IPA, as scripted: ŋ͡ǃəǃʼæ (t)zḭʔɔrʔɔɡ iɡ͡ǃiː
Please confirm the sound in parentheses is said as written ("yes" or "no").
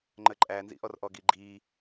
no